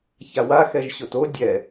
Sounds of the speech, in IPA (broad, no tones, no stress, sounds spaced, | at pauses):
ç a w a x ɛ ʒ ɕ o t o dʲ ɛ